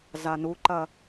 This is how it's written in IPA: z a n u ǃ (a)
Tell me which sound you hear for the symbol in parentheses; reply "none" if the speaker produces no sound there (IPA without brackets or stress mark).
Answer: ɐ